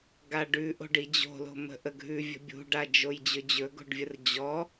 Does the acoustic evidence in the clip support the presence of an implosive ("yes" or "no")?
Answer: no